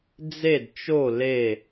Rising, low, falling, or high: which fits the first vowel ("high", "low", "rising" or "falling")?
falling